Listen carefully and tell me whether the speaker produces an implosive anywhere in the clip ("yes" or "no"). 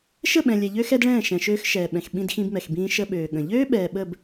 yes